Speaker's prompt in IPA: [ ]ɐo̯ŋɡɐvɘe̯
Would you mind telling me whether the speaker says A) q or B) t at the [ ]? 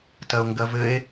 B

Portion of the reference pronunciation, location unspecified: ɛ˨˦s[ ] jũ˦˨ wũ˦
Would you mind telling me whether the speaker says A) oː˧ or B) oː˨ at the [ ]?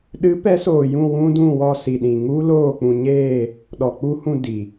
B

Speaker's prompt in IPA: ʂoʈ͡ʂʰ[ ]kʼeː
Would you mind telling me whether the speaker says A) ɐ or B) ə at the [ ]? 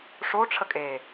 B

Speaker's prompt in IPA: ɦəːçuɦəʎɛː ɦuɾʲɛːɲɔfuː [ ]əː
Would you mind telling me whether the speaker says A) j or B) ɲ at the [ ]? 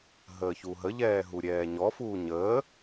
B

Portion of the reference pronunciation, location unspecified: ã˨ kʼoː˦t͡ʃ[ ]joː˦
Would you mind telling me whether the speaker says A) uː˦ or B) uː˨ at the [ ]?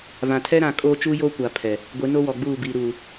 A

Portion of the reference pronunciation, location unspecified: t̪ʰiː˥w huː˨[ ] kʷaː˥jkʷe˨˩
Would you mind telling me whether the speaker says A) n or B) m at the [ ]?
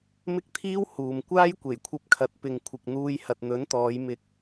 B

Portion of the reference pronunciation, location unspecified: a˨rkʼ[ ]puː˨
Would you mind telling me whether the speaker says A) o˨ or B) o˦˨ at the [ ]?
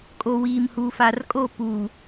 B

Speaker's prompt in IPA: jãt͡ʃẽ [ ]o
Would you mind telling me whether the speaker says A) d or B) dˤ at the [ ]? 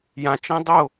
B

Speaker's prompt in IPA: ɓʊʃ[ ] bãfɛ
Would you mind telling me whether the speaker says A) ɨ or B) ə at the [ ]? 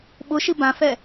A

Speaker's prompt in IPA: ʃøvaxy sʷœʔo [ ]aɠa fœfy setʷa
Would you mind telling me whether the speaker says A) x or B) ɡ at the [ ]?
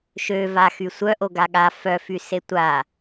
B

